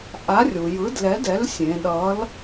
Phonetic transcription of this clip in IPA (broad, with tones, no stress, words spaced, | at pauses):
ʔa˨˥rʲu˩ jɯ˨˥dlɛ˨˥dɛ˨˥l sʲẽ˩˧ɗʌ˨˥l